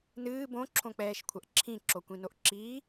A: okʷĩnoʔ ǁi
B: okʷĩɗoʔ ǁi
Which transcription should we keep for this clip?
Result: A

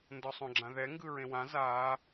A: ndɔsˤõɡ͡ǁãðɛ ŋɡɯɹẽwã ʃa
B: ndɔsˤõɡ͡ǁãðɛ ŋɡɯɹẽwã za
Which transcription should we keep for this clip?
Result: B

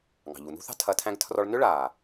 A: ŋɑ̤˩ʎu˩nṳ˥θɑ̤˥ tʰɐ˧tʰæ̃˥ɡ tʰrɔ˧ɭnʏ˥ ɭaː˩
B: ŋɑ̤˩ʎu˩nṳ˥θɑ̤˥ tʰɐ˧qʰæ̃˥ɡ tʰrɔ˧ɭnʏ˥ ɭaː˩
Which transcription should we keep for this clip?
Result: A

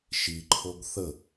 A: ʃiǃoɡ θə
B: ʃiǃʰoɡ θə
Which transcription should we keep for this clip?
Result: B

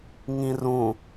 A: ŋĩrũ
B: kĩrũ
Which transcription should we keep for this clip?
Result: A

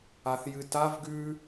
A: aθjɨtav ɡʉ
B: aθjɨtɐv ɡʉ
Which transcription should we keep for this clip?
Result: A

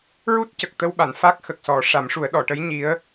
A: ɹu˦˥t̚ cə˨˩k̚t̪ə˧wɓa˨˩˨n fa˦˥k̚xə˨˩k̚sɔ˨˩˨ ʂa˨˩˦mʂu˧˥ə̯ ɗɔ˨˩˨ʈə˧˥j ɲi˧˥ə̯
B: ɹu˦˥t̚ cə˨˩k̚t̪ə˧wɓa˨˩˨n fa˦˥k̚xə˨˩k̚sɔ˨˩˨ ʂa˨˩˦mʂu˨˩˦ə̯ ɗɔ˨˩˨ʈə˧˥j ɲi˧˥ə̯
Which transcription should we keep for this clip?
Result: B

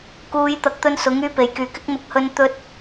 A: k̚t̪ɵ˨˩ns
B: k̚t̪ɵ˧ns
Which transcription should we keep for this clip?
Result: B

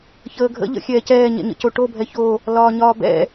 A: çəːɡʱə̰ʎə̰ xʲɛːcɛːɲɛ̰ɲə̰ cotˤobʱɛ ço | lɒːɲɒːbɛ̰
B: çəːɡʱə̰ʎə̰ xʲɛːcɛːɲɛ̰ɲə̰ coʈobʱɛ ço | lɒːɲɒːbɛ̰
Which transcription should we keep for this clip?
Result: B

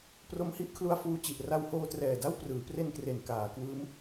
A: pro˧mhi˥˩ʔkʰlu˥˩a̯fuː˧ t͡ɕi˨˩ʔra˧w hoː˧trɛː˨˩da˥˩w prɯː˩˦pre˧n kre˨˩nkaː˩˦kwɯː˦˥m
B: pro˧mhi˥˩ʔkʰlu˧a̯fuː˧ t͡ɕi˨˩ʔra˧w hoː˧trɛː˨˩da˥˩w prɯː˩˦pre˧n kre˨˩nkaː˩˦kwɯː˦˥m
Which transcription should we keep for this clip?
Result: B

